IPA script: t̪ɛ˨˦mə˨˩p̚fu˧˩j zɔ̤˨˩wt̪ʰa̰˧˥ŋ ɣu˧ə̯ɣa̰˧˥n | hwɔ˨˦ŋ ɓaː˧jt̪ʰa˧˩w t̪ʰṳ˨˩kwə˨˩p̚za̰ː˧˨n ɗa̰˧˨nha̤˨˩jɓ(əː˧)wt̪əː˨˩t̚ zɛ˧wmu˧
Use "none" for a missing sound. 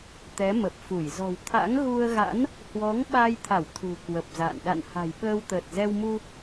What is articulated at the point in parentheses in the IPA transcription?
əː˧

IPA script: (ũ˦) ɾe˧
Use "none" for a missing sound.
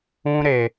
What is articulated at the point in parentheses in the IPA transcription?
ũ˦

